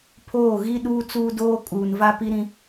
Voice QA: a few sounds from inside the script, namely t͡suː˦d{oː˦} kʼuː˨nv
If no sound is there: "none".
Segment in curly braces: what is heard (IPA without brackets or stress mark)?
oː˦